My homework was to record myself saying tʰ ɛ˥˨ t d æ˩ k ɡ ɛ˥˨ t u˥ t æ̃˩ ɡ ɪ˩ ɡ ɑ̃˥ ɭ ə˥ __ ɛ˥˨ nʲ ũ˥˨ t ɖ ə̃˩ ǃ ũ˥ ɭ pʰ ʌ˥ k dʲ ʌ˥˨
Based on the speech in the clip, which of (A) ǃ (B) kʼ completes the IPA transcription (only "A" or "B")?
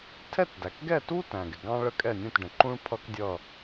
B